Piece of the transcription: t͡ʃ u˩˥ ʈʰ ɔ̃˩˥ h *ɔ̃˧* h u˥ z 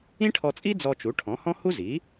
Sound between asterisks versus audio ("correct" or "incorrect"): incorrect